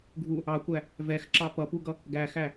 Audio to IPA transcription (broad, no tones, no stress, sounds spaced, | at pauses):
ɡʱ u | ɑ kʷ æ | v ɛ x ǁ ɑ p ʌ p u ɡ ʌ | ɡ æ x æ